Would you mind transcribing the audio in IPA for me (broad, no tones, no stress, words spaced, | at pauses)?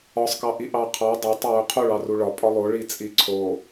ɒsˤkɑʔi ʔɑqʰɑ dˤatˤowu qʰoɭɑru ɭɒ pʼɒlˠo ɭit͡sʼiǀʰo